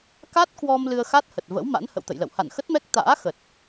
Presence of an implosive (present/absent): absent